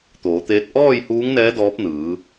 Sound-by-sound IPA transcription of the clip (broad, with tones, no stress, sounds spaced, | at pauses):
t̪ oː˩˧ t̪ eː˧˥ t̚ ʔ ɔː˥˨ j h uː˧˥ ŋ n ɛː˧˥ d ɔː˧˥ p̚ n ɯː˩˧